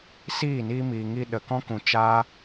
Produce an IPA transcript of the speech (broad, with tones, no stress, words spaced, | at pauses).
siː˦˨niː˧miː˨ŋi˧ ɗə˨kɔ̃˦kũ˨ t͡ʃaː˧